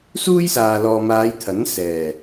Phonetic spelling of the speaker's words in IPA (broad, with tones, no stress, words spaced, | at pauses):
suː˥j saː˨lɔː˨maː˨˧j t̪ʰɐ˨˥nsɛː˨˩